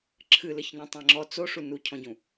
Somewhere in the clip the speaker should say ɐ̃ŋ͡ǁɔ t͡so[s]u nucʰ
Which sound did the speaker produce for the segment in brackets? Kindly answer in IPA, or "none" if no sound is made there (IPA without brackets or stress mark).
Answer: ʂ